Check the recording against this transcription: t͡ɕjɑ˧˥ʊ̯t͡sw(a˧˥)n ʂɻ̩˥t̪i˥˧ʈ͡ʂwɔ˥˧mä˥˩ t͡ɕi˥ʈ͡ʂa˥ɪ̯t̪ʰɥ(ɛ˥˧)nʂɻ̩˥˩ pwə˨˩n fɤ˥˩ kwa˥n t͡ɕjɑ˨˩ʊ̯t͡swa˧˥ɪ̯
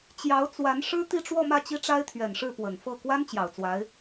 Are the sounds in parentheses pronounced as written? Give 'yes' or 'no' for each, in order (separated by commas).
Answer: yes, no